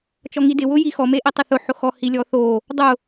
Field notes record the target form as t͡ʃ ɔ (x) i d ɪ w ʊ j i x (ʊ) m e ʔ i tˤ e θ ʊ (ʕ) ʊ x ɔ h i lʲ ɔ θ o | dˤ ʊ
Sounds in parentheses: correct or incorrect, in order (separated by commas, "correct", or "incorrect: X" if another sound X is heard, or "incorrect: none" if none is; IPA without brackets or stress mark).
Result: incorrect: ŋ, incorrect: ɔ, incorrect: ħ